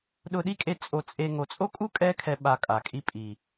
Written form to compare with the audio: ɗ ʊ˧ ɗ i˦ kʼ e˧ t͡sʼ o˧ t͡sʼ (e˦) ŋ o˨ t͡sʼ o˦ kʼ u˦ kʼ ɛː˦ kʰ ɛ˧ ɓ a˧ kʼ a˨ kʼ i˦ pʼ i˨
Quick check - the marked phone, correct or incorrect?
incorrect